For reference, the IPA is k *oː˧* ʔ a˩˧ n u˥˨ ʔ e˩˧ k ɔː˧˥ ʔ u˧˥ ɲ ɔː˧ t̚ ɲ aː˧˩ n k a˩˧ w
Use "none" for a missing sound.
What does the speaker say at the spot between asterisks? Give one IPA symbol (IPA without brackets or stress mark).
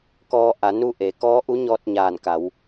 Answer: ɔː˧